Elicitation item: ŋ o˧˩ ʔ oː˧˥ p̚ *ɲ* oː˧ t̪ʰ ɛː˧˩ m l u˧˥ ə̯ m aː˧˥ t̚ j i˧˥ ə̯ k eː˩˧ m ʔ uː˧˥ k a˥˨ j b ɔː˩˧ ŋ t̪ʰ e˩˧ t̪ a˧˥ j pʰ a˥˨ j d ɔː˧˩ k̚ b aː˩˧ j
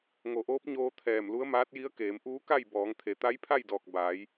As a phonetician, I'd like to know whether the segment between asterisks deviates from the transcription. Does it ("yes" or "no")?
no